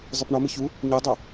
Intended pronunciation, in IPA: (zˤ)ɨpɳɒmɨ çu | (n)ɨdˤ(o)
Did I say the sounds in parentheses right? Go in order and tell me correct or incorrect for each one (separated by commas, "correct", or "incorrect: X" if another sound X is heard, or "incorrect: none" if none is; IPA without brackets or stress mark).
correct, incorrect: ɲ, correct